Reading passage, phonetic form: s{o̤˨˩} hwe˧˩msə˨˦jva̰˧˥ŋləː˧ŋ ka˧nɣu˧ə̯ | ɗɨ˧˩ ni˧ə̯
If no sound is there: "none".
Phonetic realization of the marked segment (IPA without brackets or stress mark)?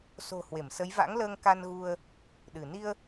o̤˨˩